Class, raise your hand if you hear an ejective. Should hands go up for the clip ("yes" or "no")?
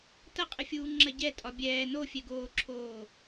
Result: yes